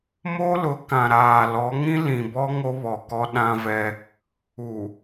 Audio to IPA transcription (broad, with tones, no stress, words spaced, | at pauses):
mo˦lʊ˨˦ kã˨ɾaː˨ lɔ˨˦ ŋĩ˦lĩ˨bɔ˦ ŋo˦βɔ˨kɔ˦ ɗã˦vɛ˦ | u˨